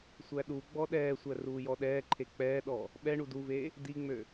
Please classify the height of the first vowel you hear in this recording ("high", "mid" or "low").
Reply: low